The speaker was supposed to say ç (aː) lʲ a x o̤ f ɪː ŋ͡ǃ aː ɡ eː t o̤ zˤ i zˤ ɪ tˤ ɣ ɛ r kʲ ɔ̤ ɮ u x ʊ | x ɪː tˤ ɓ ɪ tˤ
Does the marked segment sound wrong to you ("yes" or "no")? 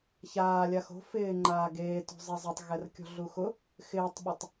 no